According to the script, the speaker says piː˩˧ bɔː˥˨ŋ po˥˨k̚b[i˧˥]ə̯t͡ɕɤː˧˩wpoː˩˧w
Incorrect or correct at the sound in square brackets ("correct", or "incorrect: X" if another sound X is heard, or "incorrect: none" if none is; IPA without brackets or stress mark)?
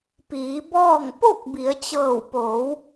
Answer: incorrect: i˩˧